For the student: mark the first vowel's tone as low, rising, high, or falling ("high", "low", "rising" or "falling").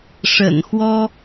low